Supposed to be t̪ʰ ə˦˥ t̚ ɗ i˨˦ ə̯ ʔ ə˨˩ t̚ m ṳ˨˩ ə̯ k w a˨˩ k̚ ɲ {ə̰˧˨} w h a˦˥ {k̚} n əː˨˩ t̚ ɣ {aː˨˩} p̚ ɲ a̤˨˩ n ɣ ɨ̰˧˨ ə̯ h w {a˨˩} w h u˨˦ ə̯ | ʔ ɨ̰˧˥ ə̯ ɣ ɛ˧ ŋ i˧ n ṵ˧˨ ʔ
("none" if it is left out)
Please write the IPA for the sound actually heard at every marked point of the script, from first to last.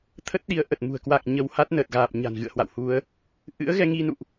ə˧, t̚, aː˨˩, a̰˧˨

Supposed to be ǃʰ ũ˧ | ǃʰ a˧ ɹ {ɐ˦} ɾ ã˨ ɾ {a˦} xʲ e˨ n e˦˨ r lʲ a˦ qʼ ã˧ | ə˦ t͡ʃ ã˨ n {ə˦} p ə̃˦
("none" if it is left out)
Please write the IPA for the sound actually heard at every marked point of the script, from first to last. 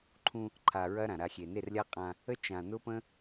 ɐ˦, a˧, ʊ˦

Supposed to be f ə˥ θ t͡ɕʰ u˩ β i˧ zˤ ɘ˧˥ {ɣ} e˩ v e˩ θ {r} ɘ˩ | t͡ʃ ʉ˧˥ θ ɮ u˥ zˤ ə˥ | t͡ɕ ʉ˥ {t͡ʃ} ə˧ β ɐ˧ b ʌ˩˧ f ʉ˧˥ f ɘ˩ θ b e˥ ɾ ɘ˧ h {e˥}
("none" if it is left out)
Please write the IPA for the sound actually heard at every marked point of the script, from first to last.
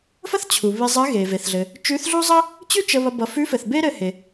ɣ, ɮ, t͡ʃ, e˩

